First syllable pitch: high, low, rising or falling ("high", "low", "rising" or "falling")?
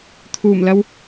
low